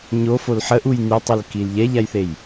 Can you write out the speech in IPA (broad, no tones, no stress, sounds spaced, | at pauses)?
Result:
ɲ o f o l ħ ə ʔ u j n y tˤ u l k i l ʎ ɛ ʎ a j θ e j